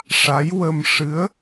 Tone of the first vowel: rising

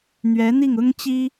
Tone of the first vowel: rising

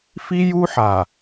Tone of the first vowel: high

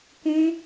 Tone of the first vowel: high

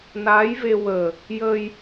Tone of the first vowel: rising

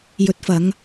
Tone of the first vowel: rising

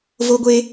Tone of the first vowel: high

